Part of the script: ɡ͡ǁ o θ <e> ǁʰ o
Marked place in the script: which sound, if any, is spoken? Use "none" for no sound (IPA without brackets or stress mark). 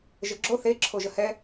e